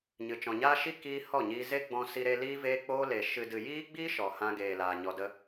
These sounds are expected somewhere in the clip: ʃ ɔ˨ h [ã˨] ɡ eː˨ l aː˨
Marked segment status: incorrect: ã˧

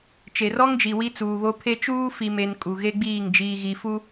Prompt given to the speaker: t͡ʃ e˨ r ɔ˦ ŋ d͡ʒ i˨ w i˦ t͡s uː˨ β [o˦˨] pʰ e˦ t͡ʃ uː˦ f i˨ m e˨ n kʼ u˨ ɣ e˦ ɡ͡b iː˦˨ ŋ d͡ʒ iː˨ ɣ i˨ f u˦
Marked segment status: incorrect: o˦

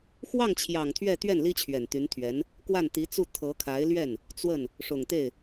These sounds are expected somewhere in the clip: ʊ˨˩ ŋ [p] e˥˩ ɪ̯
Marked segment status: incorrect: t̪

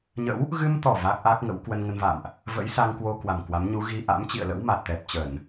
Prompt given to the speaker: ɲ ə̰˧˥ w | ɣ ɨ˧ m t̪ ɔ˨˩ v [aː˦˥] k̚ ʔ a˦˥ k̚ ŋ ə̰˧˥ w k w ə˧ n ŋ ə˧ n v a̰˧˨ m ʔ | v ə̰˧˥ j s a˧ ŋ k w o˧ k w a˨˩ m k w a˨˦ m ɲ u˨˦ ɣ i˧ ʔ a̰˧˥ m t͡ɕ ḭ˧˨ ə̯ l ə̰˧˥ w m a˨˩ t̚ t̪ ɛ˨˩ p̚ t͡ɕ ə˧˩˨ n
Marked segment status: incorrect: a˦˥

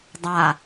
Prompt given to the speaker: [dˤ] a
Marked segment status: correct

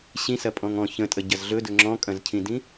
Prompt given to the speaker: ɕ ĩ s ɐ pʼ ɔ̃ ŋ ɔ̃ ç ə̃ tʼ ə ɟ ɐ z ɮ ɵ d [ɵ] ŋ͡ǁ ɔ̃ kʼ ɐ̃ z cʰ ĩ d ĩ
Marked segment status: correct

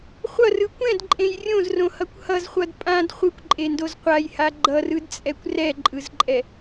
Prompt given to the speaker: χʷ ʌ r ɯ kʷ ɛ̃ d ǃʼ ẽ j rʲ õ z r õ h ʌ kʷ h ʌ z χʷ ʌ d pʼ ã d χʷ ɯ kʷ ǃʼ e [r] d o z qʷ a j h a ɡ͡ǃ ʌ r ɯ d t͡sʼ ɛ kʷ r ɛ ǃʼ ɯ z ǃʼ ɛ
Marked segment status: incorrect: n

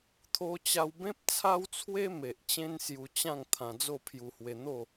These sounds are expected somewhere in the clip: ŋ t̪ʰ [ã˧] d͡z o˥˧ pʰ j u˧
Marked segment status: correct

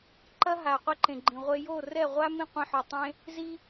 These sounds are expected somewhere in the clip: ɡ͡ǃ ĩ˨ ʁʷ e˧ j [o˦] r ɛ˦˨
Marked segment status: incorrect: o˦˨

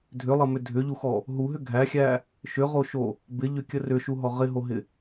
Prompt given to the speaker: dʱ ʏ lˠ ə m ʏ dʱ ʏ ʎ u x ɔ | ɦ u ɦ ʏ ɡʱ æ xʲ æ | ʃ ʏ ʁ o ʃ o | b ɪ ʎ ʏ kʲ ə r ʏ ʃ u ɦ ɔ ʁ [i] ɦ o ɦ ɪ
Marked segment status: incorrect: ɪ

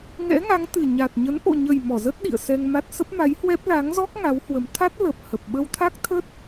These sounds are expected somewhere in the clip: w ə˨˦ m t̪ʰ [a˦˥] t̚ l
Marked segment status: correct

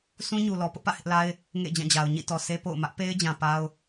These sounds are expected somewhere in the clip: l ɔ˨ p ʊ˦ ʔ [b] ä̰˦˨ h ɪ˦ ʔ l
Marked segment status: incorrect: p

